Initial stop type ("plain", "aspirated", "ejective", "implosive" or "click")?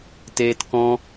plain